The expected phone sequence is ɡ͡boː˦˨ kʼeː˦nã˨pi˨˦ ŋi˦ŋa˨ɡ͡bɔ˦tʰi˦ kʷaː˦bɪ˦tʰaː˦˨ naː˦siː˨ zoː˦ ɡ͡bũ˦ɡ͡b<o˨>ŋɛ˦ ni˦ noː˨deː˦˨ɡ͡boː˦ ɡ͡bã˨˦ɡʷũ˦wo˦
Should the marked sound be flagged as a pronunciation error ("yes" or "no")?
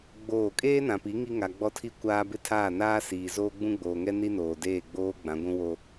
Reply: yes